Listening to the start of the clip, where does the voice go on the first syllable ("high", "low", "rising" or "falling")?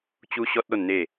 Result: high